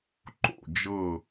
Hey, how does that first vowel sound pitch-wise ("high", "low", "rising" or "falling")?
falling